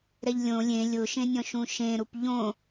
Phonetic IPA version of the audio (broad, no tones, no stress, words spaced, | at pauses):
ɾɛʎlʲõ lʲẽ lʲʊʃẽnʲɔ̃ʃũ ʃẽɾup ʎõ